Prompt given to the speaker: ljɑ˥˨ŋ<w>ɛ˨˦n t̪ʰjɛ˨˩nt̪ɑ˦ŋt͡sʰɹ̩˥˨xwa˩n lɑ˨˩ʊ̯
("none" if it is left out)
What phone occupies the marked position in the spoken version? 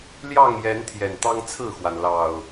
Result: j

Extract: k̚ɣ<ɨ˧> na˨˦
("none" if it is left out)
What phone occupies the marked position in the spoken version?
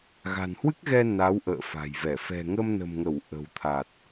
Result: ɛ˧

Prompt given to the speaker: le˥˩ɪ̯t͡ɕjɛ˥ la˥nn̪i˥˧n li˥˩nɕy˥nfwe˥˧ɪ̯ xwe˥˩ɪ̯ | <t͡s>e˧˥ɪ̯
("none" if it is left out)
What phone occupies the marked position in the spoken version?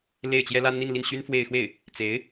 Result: t͡s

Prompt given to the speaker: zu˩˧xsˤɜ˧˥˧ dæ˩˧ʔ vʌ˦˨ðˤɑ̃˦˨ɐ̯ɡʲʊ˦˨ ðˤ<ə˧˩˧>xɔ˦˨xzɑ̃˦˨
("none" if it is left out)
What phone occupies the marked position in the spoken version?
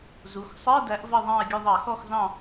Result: ɑ˧˩˧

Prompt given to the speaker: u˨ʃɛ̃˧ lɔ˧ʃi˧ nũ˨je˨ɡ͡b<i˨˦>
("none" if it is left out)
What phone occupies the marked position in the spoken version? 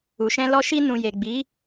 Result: i˨˦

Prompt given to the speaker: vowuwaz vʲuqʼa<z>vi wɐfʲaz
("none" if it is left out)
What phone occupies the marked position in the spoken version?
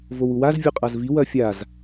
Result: z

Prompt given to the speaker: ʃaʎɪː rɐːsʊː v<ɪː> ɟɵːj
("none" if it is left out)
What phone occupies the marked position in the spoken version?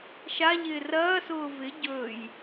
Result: ɪ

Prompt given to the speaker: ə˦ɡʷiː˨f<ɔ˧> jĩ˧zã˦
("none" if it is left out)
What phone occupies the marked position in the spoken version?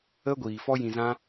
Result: ɔ˦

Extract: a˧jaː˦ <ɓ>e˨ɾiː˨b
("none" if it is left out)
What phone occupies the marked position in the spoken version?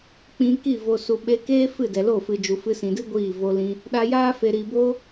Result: f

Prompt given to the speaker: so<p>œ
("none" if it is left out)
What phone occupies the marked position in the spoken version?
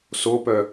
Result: p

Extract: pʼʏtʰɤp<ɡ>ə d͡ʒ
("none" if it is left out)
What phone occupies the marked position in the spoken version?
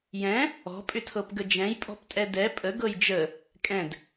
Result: ɡ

